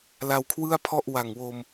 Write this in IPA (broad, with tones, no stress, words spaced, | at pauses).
la˧wkʰwɯ˥˩a̯pʰɔ˥˩ʔ wa˨˩ŋwo˧m